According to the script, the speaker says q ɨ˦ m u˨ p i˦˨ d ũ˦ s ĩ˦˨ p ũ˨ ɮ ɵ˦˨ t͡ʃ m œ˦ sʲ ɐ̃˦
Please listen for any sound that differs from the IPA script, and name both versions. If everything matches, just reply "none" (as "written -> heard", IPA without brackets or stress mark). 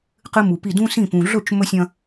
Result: œ˦ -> ɵ˦